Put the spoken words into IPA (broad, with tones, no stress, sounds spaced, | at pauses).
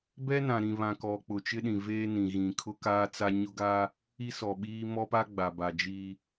b ɛ˦ n ã˨ ɾ ĩ˨ β ã˨ k ɔ˨ k͡p ʊ˨ t͡ʃ ɪ˦ ɗ ĩ˨ v eː˦ n ĩ˨ ɣ ĩ˨ kʰ ʊ˦ k aː˦ t͡s a˦ ɲ ʊ˦ ɡ a˦ | i˦ s ɔ˨ ɓ iː˦ m ɔ˦ p a˦ ɡ͡b a˨ b a˨ d͡ʒ i˦